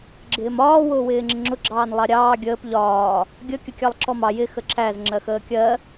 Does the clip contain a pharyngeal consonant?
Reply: no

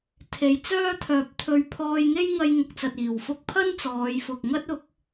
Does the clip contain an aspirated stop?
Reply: yes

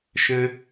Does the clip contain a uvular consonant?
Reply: no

